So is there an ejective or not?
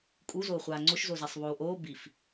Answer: yes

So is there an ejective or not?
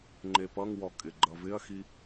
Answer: yes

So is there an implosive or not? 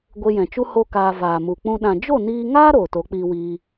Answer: yes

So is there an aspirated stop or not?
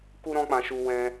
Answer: no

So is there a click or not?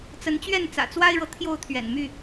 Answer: no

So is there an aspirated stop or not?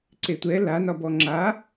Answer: no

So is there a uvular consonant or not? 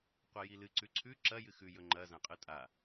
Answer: yes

